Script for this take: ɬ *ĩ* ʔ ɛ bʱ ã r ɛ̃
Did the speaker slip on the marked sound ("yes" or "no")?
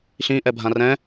no